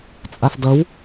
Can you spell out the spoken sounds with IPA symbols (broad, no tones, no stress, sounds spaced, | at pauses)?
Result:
t͡sʼ a f d ʌ w